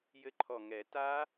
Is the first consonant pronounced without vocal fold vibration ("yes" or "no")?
no